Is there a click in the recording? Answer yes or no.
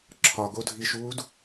yes